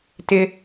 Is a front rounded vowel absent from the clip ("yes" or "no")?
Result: yes